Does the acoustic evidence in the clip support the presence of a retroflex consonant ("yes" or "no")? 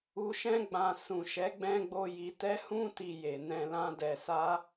no